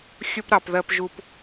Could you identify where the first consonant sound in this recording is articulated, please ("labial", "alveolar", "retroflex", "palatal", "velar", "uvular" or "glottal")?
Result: velar